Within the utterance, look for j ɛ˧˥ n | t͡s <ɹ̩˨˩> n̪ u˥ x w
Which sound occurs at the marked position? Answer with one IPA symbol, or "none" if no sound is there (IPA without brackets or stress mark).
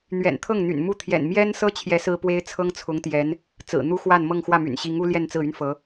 ɹ̩˨˩